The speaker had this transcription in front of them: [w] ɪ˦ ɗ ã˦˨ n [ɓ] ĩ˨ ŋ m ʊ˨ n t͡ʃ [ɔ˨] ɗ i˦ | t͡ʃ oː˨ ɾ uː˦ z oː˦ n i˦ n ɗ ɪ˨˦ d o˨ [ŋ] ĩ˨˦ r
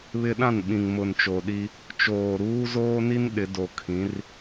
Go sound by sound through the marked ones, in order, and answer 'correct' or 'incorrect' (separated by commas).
incorrect, correct, incorrect, incorrect